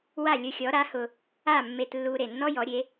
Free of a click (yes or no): yes